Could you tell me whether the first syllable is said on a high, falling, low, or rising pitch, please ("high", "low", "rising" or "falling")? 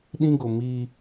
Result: high